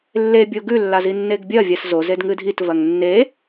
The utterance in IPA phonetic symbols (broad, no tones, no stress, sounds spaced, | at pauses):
lː e bʲ o ɡ ʉ lː a z i nː e ɡ bʲ ɐ vʲ a s z o z e d ŋ ɨ dʱ i t v ɐ ŋ nː e